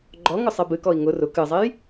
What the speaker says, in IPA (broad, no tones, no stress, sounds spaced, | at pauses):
ɡ͡ǃ ɔ ŋ ʊ sˤ e b ɨ k ɔ i̯ ŋ ʊ r ʊ k ɨ zˤ e j